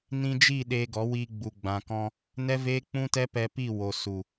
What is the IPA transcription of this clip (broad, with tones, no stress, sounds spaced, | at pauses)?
n ĩ˧ d͡ʒ i˦˨ ɗ eː˧ ɡ ɔ˨˦ w iː˧ ɡ͡b u˨ ɡ͡b ã˨ k ɔ̃˧ | n ɛ˦ v eː˦ k͡p ũ˦ t ɛ˦ p ɛ˧ p i˦˨ w o˨ s u˨